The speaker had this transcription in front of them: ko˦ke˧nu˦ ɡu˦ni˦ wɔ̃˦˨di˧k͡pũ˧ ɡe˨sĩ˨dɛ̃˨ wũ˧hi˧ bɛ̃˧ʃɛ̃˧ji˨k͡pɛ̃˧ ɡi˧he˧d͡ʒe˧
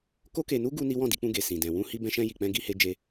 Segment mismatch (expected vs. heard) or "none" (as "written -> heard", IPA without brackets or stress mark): none